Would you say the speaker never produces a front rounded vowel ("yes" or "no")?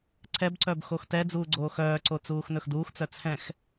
no